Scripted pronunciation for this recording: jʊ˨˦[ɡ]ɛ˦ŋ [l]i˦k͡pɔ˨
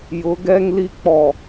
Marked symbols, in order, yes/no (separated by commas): yes, yes